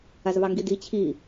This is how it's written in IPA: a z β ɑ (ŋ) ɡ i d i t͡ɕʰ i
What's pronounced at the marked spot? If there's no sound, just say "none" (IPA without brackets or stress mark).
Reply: ŋ